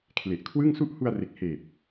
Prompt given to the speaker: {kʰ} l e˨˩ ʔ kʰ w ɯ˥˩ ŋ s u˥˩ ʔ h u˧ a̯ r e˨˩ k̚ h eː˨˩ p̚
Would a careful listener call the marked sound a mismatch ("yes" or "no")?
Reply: no